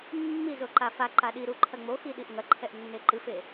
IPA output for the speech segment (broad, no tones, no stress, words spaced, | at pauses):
mːizo ǃafaǃa ɗiɾu ǃʰɐŋ͡moxi ɗiʔŋɐǃʰɛʔ nːeǃɨfe